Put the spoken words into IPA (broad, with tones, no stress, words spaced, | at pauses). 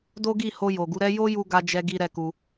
do˦ɡi˦˨ho˧ jo˨ɡu˨˦ ɾɛ˦ jo˦ju˧ ɡa˦d͡ʒɛ˦ɡi˦ ɾɛ˦ku˧